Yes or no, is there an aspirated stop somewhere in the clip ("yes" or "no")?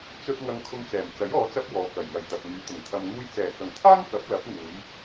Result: yes